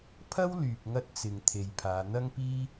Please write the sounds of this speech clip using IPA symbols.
pʰ ɐ˥ w l yː˨ p̚ ŋ ɐ˥ t̚ t͡s ɪ˨ ŋ t̪ʰ e˨ j pʰ aː˨˧ n̪ ɐ˥ ŋ p iː˥

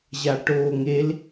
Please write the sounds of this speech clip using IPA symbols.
ʑ a ʈ oː ŋ e l

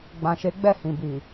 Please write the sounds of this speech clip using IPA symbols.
ɡ͡b ã˨ ʃ e˨˦ ɡ͡b ɛ˦˨ h ĩ˨ b i˨

